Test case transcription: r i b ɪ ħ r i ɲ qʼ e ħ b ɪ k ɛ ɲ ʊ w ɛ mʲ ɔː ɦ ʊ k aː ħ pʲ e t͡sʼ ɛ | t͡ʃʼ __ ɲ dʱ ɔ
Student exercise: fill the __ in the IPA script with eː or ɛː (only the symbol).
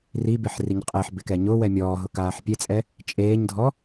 eː